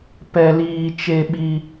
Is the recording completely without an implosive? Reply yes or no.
no